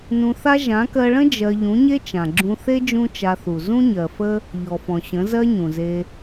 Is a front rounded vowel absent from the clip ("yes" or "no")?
yes